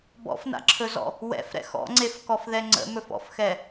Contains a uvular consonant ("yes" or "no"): no